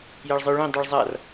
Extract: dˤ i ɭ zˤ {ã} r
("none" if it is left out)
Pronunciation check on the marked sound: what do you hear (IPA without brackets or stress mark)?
a